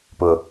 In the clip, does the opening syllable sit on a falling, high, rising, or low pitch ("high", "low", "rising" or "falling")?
low